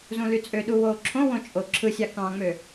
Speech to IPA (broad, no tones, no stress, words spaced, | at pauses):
zũlyt͡sʼøɗu woːǁʰõwõ t͡ʃʼo ǁʰɯsʲɑ kɑ̃ŋ͡mø